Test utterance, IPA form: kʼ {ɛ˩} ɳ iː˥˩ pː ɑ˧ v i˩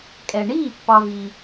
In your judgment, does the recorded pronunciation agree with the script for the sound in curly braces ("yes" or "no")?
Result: yes